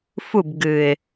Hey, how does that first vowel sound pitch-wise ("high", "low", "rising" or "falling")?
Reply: falling